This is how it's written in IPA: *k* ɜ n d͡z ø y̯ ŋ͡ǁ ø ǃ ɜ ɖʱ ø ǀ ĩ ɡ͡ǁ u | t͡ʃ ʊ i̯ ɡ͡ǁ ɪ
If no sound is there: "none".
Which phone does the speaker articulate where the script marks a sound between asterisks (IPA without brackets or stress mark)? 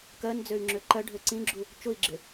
k